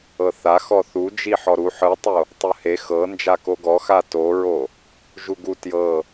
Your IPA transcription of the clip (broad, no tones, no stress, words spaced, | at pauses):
ɤθa xɔθud͡ʒi ħɔɾu ħɯtˤo | tˤɯhe xɤ nd͡ʒakoɡɔ xatoɹo | ʒuɡu tjɤ